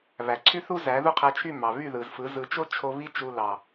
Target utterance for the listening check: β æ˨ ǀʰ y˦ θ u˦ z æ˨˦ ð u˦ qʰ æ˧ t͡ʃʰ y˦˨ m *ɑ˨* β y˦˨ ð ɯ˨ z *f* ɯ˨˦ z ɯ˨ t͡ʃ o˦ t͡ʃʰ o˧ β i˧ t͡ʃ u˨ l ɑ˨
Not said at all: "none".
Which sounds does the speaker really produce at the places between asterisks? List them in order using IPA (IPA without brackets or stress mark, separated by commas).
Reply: ɑ˨, f